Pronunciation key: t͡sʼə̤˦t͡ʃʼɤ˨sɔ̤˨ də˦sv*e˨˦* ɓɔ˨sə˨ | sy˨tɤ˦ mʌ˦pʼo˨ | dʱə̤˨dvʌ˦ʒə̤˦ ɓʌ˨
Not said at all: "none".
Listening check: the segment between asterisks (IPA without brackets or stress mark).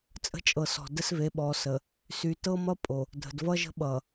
e˨˦